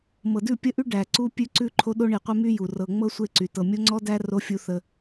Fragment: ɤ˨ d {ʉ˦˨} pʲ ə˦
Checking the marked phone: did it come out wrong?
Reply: no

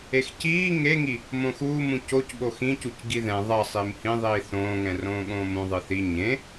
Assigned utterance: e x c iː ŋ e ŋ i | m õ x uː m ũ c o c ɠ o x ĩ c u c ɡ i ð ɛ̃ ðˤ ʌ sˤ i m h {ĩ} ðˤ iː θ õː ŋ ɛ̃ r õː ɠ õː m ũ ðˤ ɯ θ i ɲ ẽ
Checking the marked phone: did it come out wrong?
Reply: no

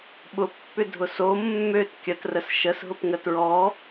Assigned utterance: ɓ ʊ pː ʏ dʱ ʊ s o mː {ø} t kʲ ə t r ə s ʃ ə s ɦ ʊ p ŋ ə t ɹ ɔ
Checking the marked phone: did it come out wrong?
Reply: no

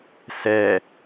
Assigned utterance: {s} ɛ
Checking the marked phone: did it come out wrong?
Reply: no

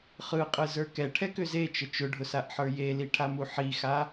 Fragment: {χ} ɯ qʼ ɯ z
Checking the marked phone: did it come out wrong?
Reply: no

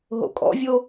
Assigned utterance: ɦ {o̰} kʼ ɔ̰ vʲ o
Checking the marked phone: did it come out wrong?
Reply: no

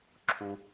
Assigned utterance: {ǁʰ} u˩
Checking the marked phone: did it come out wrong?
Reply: no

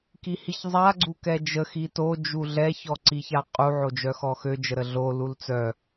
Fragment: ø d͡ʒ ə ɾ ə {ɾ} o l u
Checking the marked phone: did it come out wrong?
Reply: yes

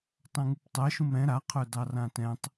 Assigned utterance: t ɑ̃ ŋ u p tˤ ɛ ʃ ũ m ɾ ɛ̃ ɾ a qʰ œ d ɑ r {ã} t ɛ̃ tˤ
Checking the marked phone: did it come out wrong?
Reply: no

